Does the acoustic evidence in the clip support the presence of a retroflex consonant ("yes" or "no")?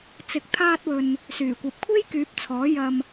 no